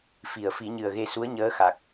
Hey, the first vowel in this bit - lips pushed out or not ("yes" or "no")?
no